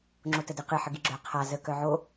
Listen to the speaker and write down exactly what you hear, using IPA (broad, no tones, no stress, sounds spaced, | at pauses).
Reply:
ŋ͡ǁ o t ə d ɨ q ɨ ħ ə ɡ i ɡ͡ǁ œ qʰ a z ə k œ ʕ o